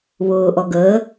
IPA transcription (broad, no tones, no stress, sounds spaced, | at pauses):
β ʊː ʔ ɔ ɡ əː